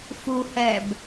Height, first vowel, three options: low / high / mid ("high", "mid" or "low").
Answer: high